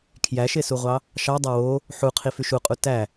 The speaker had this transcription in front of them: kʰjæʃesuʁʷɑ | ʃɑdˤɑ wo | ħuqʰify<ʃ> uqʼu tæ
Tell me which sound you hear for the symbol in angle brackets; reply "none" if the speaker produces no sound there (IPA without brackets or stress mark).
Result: ʃ